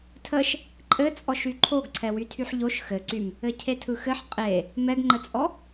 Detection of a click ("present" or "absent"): present